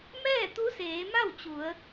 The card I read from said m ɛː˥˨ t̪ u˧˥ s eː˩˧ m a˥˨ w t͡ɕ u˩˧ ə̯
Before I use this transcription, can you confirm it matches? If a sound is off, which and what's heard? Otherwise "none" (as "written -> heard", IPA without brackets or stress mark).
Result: none